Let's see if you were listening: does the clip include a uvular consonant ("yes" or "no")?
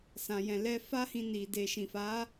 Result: no